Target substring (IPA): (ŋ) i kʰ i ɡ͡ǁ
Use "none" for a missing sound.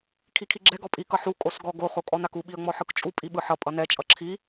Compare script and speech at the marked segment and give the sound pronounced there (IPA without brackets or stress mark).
kʰ